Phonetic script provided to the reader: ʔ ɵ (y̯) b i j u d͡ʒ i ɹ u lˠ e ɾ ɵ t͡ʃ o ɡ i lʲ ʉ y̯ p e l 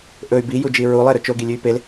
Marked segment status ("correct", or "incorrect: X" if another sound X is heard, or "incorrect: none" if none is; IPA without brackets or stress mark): correct